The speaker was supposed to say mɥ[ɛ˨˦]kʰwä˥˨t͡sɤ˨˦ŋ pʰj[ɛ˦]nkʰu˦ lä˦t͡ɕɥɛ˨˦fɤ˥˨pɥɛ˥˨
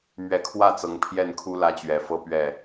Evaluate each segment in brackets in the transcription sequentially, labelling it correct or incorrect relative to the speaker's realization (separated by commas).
correct, incorrect